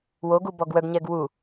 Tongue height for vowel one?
mid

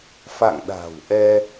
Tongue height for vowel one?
low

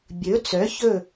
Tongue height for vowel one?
mid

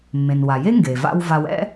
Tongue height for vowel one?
mid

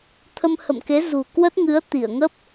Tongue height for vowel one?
mid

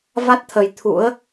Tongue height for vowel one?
low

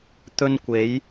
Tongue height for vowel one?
mid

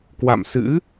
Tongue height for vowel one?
low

